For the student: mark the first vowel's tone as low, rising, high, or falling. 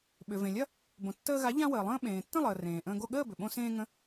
low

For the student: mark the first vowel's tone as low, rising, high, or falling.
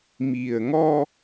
low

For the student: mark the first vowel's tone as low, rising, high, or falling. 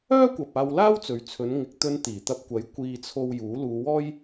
high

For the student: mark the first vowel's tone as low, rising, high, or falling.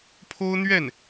high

